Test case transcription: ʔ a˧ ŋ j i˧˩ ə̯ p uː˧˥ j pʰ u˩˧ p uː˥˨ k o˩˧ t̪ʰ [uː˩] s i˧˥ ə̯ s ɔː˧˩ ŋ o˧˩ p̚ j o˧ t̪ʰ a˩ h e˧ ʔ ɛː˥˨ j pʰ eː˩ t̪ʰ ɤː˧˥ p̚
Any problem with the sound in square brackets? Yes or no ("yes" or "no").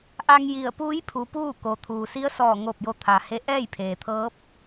no